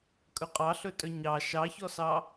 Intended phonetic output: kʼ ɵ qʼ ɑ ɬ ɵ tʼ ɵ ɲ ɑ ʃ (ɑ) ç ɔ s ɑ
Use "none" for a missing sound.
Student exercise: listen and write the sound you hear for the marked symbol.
ɑ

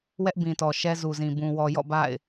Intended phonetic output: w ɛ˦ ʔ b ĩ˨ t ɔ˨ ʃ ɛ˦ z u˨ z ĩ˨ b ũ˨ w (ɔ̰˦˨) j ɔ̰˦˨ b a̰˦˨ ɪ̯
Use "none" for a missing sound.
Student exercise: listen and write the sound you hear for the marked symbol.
ɔ˨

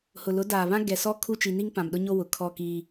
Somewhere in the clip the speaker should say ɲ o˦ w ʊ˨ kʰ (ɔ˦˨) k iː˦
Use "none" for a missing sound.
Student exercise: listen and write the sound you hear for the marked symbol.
ɔ˦˨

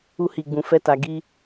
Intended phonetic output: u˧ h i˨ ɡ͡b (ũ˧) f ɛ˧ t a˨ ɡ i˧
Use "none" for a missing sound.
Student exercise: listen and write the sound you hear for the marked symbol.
ũ˨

